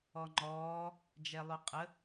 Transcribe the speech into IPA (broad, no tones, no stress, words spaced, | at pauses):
ɔŋ͡ǃɔː | d͡ʒɛlˠʉqʼə